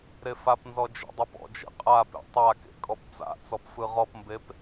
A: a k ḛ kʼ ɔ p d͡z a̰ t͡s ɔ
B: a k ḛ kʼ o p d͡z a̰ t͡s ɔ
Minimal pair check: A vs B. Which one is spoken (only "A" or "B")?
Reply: A